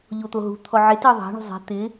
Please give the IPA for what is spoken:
ʎot̪oɦṳ t̪ʰɔʕɪ tiðˤa̤ ɳṳzˤe̤ t̪ɪ

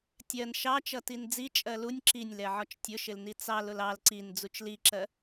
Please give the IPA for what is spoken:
tʲɜn ʃɑt͡ʃʌ tind͡zi t͡ʃʼɜlunʲ ǁinʲlɛʕɒt͡ʃ tʲʊʃɪlni t͡sɑlʊl ɑl ǀin d͡zut͡ʃliǁɜ

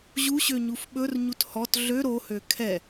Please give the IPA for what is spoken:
ʑuɕø ɲufɓɵrɲut hɔt ɮø ɾohø kʰɛ

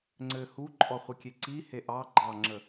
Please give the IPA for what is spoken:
ŋ͡ǀɘ huǃʼɔ χʷɘkʲeǀi heʔɑ ɡ͡ǃɑŋ͡ǁə

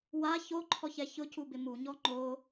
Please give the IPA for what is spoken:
wa çoǃʰɔçɛ çʊcubɪ muɲɔ ŋ͡ǃo

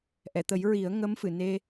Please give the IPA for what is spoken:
ʔɛ˨˩˨t̪ə˨˩˦j ɹi˨˩˦ə̯ŋə˧˥m fɨ˨˩˨ ne˧

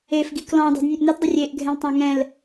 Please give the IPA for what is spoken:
efɡi klɔ̃ dˤi̤dnʲɛ̃ʔnɛtdˤʊ rʲeʔɡʱɛ̃ltˤã ŋɛ̃l

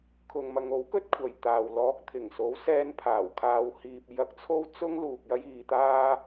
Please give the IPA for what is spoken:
kʰʊ˨ŋmɐ˨˧ŋo˨˥wkɵ˥t̚ kʷʰɐ˨jt̪aː˨w lɔː˨˥k̚t̪ʰɪ˨˩ŋso˨˥w sɛː˧npʰaː˨˩wkʰaː˨˧w hiː˨p̚jɐ˧k̚ t͡sʰo˥wt͡sʊ˥ŋ luː˨k̚jɐ˧jiː˨t̪aː˧

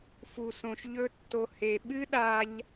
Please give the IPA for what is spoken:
fu˧sõ˧ʃʎɵ˦tːo˧ he˨ɓɨ˦ɗa˧ʎ

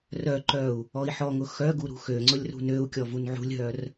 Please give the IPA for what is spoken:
rœǃœu̯ | ɔi̯ħɔŋʊ xœɡu ɾṳxøŋ͡ǀʊlʲ rṳnøu̯kʲɔ vunʕṳlʲɦœr

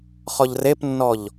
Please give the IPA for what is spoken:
χɔʎrepnːɔʎ

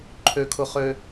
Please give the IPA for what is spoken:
ǃʰøkʰʊχø

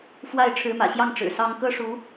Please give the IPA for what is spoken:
fwa˥˩ɪ̯ ʈ͡ʂʰɻ̩˧˥mä̰˨˩ɕjɑ˥˩ŋ ʈ͡ʂɻ̩˨˩sɑ˥ŋ kɤ˥ʂu˧˥

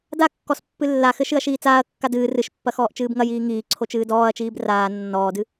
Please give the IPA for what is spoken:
dakːɔs pːɨlːaxɘ ʃɨɐ̯ʃiːt͡saːɐ̯kːa dɨː rɨʃpːɐ xɔːʔt͡ʃɨːbŋɐjiː ŋiː ǀʰot͡ʃɨːdɔːɐ̯t͡ʃiːb raː nːɔːdɨ

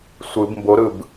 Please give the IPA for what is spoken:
sʷɯb mboɾɯb

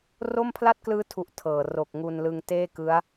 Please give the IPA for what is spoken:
ro˥˩mpʰla˥˩t̚klɯː˦˥tʰu˨˩ʔ tʰɤː˨˩ ro˨˩k̚ ŋu˧nlɯ˧ŋ teː˥˩kɯ˦˥a̯

